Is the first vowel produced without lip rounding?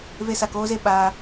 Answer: yes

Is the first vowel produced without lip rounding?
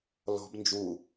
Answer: no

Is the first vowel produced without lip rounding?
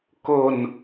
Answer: no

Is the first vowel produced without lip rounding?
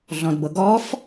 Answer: no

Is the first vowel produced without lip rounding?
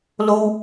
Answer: no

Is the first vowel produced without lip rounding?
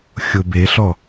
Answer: no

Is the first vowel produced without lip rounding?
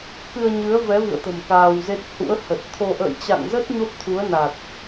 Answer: yes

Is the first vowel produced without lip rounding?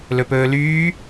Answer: no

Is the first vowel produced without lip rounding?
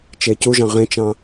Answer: yes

